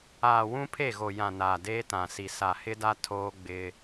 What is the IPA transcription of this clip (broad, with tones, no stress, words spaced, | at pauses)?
aː˨wũ˦pʰe˦˨ɣo˨ jã˨naː˨ deː˦tã˨si˨ sa˨hɪ˦da˦ tʰoː˦ɡ͡bɪ˦